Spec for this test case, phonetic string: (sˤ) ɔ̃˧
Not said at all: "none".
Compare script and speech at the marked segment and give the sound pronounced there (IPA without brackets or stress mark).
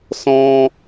s